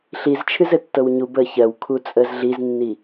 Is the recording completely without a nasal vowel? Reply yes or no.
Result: yes